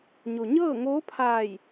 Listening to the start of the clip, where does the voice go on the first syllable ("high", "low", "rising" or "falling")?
low